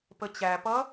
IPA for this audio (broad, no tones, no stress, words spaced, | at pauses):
pət͡ɕæpʌ